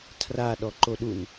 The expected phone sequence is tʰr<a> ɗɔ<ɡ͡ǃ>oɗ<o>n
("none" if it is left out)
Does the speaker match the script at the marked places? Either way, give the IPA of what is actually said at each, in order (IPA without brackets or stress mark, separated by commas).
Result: a, ǃ, u